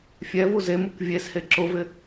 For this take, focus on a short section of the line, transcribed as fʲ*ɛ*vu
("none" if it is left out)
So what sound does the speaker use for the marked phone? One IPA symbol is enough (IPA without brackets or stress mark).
ɛ